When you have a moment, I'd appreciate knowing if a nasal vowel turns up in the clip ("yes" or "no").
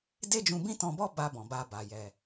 yes